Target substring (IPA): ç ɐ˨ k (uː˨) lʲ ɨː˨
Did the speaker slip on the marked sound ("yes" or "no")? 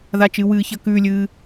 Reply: yes